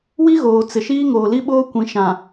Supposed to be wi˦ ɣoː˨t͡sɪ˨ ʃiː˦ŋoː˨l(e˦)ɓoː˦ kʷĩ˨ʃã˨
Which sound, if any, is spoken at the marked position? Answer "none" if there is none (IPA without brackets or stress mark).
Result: i˦